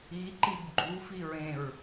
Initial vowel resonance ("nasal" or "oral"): oral